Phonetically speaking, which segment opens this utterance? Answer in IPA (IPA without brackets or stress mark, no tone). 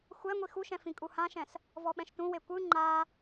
xʷ